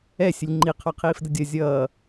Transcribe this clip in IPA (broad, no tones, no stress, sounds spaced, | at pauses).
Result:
ɛ sʲ ə lʲ ŋ͡ǃ i qʰ ɔ qʰ iː f d ə dʲ ʌ zʲ ʌː